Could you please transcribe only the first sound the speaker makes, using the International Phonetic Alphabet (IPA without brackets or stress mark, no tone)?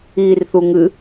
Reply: iː